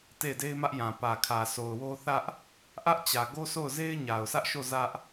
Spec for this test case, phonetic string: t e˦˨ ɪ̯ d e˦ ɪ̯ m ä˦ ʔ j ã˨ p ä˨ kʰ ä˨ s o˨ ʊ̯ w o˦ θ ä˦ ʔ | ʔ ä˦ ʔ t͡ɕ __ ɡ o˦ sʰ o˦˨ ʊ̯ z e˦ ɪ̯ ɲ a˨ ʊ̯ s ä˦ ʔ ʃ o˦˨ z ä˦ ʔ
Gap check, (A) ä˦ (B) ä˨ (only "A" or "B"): B